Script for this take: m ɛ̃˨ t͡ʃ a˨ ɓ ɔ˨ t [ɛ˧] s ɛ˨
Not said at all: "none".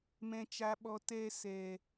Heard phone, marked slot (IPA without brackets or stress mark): ɛ˧